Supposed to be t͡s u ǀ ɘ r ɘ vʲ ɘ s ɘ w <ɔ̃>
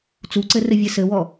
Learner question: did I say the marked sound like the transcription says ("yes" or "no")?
no